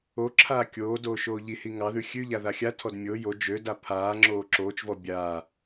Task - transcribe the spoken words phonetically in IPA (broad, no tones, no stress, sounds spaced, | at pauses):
o ǁʰ aː kʲ oː d oː ʃ oː ʎ i h i ŋ ɑ ð ʉ xʲ ʉ ʎ a ð a xʲ a tʰ ɔ d mʲ o j o d͡ʒ ø d a pʰ aː ŋ͡ǁ oː ǁ oː t͡ʃ v ɔ bʲ aː